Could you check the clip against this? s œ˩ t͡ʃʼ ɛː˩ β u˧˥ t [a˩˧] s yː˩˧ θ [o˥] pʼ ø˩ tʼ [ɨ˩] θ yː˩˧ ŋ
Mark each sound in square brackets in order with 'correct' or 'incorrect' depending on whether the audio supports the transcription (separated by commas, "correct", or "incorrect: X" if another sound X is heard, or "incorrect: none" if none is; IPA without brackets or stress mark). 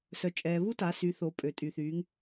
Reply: correct, incorrect: o˩˧, incorrect: y˩